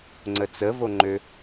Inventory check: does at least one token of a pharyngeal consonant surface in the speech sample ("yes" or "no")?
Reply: no